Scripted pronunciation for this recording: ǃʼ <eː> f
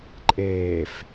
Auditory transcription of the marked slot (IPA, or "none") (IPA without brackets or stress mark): eː